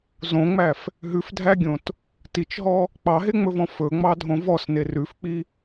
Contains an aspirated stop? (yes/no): no